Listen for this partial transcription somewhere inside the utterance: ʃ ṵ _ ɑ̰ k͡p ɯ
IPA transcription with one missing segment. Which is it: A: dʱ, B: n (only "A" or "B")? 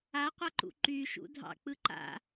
A